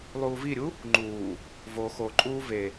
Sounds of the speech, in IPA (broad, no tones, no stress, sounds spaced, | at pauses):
lˠ uː v i ɾʲ u | ŋ͡ǃ uː | v o x o ǃʼ uː v e